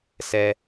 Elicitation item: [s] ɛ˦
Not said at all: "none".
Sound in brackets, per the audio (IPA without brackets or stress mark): s